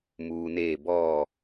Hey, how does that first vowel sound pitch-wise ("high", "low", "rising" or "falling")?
low